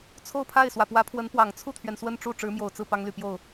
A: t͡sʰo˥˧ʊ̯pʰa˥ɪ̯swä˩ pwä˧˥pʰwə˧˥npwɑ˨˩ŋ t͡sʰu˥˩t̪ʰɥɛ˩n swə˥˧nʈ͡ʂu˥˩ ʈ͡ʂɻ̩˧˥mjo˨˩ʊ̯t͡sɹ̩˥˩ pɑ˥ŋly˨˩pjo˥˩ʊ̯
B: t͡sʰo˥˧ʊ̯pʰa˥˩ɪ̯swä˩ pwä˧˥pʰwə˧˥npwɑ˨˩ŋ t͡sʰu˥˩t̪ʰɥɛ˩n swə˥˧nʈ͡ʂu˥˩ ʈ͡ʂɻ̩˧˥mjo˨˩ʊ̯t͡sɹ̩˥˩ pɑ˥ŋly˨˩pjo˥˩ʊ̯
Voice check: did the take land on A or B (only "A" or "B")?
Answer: B